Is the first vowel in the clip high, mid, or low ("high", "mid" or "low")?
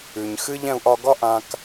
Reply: high